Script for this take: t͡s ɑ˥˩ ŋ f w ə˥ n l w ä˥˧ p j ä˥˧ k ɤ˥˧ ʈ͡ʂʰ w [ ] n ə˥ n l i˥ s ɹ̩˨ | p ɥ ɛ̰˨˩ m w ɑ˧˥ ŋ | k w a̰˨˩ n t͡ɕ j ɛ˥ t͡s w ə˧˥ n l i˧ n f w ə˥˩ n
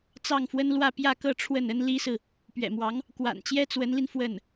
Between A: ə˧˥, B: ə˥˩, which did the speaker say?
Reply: B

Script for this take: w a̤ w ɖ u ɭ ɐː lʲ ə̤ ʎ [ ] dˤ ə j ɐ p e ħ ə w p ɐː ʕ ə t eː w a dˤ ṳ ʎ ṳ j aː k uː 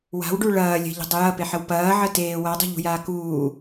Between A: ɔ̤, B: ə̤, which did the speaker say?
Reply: B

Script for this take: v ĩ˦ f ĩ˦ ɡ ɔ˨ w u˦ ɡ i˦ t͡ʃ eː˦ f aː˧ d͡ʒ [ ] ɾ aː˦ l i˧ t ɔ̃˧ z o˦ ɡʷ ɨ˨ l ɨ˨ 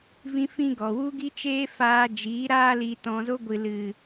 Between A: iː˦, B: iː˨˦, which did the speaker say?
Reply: B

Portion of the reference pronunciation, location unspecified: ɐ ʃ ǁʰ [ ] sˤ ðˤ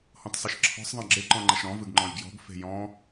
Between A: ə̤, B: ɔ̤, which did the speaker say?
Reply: B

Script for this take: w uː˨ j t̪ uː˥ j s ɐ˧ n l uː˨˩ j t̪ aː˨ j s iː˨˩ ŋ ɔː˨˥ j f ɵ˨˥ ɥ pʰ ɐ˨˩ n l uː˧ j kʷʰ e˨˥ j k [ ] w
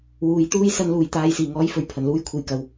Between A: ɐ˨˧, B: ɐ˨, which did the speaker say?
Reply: A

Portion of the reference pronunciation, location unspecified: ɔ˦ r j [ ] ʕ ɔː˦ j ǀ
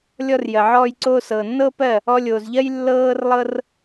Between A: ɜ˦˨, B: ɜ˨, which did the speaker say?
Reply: B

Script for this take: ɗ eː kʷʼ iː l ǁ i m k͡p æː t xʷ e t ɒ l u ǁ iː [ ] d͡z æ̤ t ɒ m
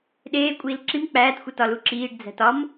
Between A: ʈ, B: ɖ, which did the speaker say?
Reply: B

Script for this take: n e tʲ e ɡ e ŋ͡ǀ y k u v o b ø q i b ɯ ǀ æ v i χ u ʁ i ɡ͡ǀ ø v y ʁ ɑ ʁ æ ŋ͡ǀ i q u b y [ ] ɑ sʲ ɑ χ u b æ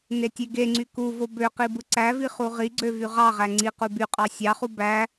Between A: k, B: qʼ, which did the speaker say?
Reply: B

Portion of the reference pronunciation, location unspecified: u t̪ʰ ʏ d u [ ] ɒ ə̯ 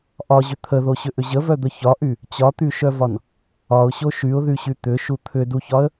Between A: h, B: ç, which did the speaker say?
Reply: B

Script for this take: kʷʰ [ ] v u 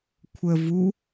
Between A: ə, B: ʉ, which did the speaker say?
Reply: A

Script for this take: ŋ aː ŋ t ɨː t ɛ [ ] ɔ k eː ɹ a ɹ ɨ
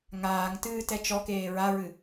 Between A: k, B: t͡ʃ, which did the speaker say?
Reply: B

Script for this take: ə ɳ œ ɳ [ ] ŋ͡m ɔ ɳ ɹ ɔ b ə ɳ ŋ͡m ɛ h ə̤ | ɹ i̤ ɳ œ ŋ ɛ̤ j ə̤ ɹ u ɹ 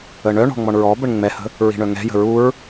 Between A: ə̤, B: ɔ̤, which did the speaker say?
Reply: B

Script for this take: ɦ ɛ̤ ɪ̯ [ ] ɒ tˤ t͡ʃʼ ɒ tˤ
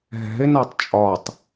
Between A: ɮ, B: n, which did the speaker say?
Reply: B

